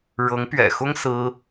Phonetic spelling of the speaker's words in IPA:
ɻ ɤ˧˥ ŋ p ɥ ɛ̰˨˩ x ʊ˥ ŋ s ɹ̩˥

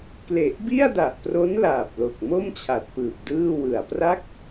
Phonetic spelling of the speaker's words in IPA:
k l e˨˩ ʔ b i˥˩ a̯ d a˨˩ ʔ p r o˦˥ n l aː˨˩ p̚ l o˨˩ k̚ m o˥˩ m t͡ɕʰ a˨˩ t̚ p ɯː˨˩ p̚ d ɯː˥˩ w ɯ˨˩ a̯ p r a˥˩ k̚

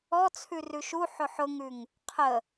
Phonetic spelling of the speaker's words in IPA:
ɔ t͡sʰ ʉ r ʉ ʃ u ħ ʊ ħ ʊ ŋ ʉ ŋ | qʰ ə

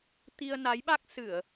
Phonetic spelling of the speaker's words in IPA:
t̪ i˧ ə̯ n a˨˦ j ɓ a˦˥ k̚ s ɨ˧˩˨ ə̯

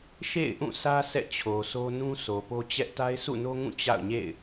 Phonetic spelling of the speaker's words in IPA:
ʃ ḛ˦˨ ɪ̯ ʔ ũ˦˨ sʰ ä˦ sʰ ɛ̰˦˨ t͡ɕʰ o˨ s o˦ n ũ˦ s o˨ p o˦ t͡ɕ ɛ˦ ʔ t a˦ ɪ̯ sʰ ṵ˦˨ n o˦ ŋ ũ˦˨ t͡ɕ a̰˦˨ ʊ̯ ɲ ḛ˦˨ ɪ̯

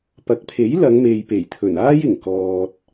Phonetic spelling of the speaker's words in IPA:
p ɐ˨˥ k̚ pʰ e˨˥ j l ɐ˨˧ ŋ m e˨ j p e˨˩ j t̪ʰ ɵ˨˩ n aː˥ j ɪ˨˩ ŋ k ɔː˨ t̚

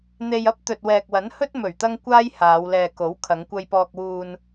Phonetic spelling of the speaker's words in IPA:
n̪ e˧ j ɐ˥ p̚ t̪ ɵ˨ t̚ w ɛː˨ k̚ w ɐ˨˥ n h ɵ˥ t̚ m ɵ˨˩ ɥ t̪ ɐ˧ ŋ kʷ aː˥ j h aː˨˧ w l ɛː˨ k o˨˥ w kʰ ɐ˨˧ ŋ kʷ ɐ˧ j p ɔː˧ k̚ w uː˧ n

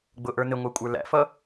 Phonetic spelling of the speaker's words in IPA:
ɡ͡b ʊ ʔ ə˞ n ɪ ŋʷ æ kʷʼ ə˞ l æ̰ f ʌ

